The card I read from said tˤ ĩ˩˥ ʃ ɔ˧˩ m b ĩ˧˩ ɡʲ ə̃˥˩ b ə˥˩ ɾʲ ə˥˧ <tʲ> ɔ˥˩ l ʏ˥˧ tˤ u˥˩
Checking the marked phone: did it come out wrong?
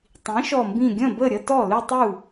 yes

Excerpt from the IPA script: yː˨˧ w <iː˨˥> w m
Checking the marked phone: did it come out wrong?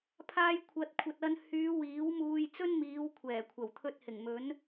no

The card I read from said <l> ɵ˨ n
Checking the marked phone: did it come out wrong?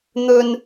yes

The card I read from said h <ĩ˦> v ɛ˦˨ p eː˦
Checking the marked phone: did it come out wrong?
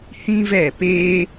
no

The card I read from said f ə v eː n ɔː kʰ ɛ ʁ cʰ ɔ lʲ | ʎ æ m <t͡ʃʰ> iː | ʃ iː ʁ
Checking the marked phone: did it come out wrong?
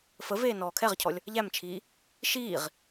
no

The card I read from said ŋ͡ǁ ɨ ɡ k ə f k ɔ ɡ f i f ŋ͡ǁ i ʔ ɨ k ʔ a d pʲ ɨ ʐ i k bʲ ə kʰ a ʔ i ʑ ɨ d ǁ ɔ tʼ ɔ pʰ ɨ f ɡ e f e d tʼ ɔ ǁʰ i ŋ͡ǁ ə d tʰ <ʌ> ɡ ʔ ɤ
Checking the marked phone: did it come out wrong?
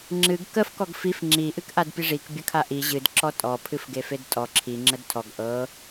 yes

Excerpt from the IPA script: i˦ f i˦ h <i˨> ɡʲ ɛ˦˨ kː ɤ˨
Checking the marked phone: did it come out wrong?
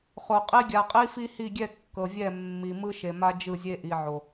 yes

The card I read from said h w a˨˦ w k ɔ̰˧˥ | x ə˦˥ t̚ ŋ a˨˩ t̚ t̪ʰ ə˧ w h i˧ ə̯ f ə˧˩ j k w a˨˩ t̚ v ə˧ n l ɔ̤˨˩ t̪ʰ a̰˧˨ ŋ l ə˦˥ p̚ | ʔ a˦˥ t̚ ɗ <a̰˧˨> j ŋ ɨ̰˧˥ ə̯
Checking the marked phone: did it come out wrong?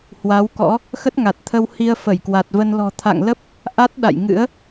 no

